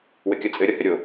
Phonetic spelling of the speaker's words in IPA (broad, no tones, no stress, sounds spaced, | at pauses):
w ɘ kʲ ʌ t͡sʼ ɘ ɾʲ ʌ h ɘ ɾʲ o